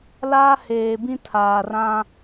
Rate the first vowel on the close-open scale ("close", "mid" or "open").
open